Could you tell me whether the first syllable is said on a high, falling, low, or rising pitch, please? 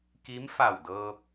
rising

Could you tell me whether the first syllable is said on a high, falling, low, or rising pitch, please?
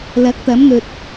rising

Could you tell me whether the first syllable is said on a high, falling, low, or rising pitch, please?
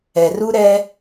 low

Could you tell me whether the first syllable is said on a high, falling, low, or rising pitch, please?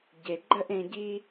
low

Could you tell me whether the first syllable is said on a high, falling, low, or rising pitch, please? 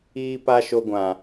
high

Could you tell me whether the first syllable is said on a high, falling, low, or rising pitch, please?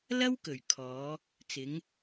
high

